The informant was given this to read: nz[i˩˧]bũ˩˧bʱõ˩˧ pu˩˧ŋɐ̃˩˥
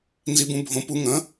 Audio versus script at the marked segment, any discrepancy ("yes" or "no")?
no